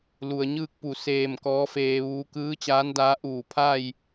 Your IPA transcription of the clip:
l u˩ ə̯ ɲ ɯː˥˨ k̚ p u˧˩ s eː˧˩ m k ɔː˧˥ f eː˧ ʋ uː˧˥ k ɯː˧˥ t͡ɕ aː˧˥ n d aː˧˥ ʔ uː˧˩ pʰ a˥˨ j

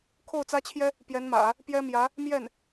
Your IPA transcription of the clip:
kʰ o˥˩ ʊ̯ t͡s ä˥ t͡ɕʰ j ɛ˥ | p j ɛ˧˥ n m ä̰˨˩˦ | p j ɛ˥ m j ä˧˥ | m j ɛ˥˩ n

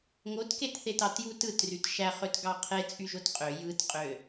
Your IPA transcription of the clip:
ŋ o t k e t θ e t ɑ t j u t ɯ t r y t ʃ æ χ ø t ɡ ɑ qʰ e t͡sʼ y ʒ o t qʼ ø j ɯ t qʼ ø

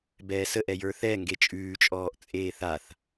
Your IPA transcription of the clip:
b ɛː s ə ʔ ɛ j ə˞ θ ɛ ŋ ɡ e t͡ʃʼ ʉː t͡ʃʼ ɔː ʔ t͡sʼ eː θ a θ

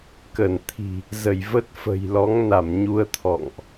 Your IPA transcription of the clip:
k ə˧˩ n t̪ʰ i̤˨˩ | z ə˧˩ j v ə˦˥ t̚ f ə̤˨˩ j l ɔ˨˦ ŋ n a˧˩ m ɲ u˧ ə̯ t̪ʰ ɔ̰˧˨ ŋ ʔ

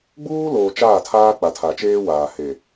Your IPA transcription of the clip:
ɡ͡b uː˦ l oː˨ t͡ʃ aː˦˨ tʰ aː˦ k͡p a˨ tʰ a˨ t͡ʃ eː˦ w aː˨ h e˨

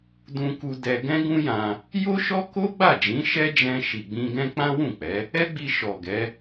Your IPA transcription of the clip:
d ũ˧ k u˧ d ɛ˧ ɡ ɛ̃˦ ɡ ũ˦ j ã˧ | j o˦ ʃ ɔ˦ k o˦ ɡ͡b a˦˨ d͡ʒ ĩ˨˦ ʃ ɛ˦ d͡ʒ ɛ̃˧ ʃ i˨ ɡ͡b ĩ˧ ɡ ɛ̃˦ k͡p ã˦ w ũ˦˨ k͡p ɛ˨˦ | ɛ˦ ɡ͡b i˧ ʃ ɔ˨ ɡ ɛ˨˦

